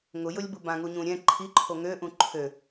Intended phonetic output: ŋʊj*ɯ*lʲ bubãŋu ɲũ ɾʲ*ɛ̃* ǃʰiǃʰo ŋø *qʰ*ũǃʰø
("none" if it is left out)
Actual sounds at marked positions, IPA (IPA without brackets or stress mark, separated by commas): ʊ, ɛ̃, ʔ